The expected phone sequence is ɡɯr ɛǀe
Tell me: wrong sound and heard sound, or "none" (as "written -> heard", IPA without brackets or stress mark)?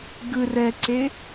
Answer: none